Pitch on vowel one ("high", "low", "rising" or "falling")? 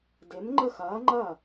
rising